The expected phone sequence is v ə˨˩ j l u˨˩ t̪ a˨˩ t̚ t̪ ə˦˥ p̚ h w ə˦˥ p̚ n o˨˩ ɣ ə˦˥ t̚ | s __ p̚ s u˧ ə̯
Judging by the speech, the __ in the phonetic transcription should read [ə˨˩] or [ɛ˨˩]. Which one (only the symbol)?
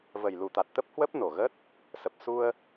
ə˨˩